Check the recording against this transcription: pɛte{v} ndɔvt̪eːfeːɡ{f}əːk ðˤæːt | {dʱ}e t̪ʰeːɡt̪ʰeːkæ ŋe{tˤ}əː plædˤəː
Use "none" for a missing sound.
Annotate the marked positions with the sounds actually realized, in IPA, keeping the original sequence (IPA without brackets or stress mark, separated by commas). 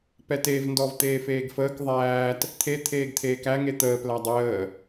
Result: v, f, t̪ʰ, t̪